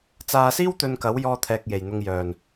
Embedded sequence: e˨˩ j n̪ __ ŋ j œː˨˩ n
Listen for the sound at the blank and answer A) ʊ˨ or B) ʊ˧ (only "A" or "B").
A